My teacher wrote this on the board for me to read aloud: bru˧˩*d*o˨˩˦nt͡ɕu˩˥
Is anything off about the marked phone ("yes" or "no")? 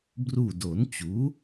no